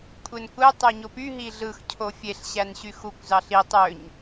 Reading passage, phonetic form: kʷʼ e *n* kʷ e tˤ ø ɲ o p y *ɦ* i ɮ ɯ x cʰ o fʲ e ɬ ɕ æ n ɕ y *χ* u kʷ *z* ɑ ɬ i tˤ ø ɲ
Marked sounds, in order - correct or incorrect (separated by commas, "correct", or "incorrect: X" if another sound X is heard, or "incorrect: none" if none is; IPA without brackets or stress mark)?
correct, correct, incorrect: x, correct